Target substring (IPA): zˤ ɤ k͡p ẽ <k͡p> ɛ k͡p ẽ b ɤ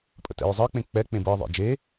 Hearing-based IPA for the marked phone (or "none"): k͡p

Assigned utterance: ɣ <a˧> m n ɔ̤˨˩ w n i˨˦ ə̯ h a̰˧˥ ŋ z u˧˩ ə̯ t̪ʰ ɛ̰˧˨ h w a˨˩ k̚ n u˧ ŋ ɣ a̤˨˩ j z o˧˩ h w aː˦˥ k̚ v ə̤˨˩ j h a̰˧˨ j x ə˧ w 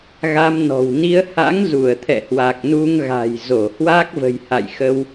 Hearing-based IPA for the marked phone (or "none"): a˧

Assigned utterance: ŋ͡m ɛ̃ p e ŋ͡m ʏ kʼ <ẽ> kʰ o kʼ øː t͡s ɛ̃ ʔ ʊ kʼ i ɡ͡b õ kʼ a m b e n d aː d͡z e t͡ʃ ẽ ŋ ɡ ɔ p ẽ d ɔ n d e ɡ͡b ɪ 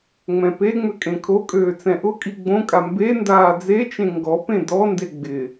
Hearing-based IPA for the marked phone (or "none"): ẽ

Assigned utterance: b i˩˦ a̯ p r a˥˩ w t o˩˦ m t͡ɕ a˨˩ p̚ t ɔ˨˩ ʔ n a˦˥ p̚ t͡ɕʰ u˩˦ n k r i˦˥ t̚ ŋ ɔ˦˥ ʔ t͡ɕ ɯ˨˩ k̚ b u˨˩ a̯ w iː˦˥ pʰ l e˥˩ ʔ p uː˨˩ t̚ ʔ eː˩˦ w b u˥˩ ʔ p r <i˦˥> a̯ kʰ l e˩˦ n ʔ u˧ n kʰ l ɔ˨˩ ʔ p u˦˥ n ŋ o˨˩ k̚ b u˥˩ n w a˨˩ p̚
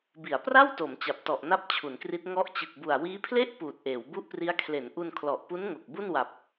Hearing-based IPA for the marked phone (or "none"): i˦˥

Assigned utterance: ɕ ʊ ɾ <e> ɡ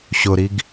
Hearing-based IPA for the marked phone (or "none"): i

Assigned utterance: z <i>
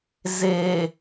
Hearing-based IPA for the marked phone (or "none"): e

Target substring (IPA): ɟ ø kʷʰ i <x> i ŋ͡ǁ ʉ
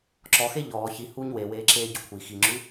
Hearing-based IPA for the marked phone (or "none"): x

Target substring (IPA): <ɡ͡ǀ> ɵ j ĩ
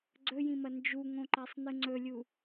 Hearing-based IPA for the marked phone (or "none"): ɡ͡ǀ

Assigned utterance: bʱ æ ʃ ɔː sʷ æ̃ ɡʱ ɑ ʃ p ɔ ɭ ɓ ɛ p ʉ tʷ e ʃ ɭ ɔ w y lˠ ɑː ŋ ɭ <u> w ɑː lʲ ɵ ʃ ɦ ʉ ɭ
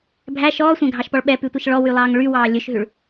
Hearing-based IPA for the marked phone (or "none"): y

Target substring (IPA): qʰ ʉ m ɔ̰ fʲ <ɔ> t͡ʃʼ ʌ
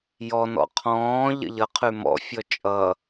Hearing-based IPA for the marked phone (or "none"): ɔ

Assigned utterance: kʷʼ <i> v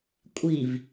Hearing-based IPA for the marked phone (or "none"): i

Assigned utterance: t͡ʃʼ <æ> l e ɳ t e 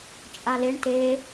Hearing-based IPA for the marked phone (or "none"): a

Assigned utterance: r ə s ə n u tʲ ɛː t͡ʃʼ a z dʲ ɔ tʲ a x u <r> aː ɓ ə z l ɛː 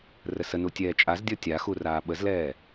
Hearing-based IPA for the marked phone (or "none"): r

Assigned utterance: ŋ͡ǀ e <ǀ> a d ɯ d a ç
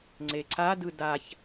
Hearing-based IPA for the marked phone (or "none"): ǀ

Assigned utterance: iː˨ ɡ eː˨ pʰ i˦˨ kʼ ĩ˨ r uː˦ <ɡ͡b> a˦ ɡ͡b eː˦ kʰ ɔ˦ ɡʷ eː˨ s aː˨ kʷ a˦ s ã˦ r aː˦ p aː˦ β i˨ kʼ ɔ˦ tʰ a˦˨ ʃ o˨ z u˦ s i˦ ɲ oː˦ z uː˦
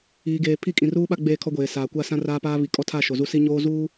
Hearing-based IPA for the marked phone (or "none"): ɓ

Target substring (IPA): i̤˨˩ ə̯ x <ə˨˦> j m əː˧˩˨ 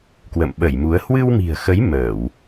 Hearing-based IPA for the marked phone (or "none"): ə˨˦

